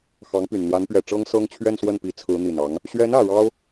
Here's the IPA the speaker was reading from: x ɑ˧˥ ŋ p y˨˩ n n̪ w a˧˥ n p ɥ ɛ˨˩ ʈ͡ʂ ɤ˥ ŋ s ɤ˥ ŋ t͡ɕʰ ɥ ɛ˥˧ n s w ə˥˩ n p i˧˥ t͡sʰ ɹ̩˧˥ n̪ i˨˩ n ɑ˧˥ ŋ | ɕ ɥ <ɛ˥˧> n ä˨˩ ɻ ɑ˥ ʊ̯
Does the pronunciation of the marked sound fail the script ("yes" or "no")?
yes